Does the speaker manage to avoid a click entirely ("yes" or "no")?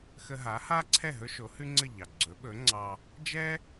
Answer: no